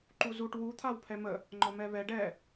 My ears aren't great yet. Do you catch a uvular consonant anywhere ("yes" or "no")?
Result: no